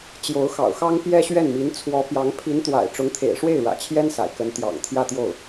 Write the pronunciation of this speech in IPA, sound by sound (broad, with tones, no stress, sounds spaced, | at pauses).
t͡ɕ j o˧˥ ʊ̯ x ɑ̰˨˩ ʊ̯ x ɑ˥ ŋ p j ɛ˥ ɕ ɥ ɛ˥˩ n m i˧˥ n t͡sʰ w ɔ˧˥ p j ɑ˧˥ ŋ pʰ i˧˥ n t̪ w a̰˨˩ ɪ̯ ʈ͡ʂ ʊ˧˥ ŋ t̪ʰ ḛ˨˩ ɪ̯ ʂ w e˥˩ ɪ̯ ɻ ä̰˨˩ t͡ɕʰ j ɛ˥ n s a̰˨˩ ɪ̯ k ə˧˥ n t̪ j ɑ̰˨˩ ŋ t̪ʰ j ä˥˧ t̪ j o˥˩ ʊ̯